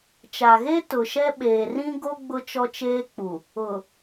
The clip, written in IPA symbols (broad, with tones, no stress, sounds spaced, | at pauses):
t͡ʃ a˨ ɣ e˦ t ʊ˨ ʃ ɛ˦ ɓ eː˨ r ĩ˦ ɡ o˦ ɡ͡b ʊ˦ t͡ʃ ɔ˦ t͡ʃ eː˦ k͡p u˨ | ʊ˨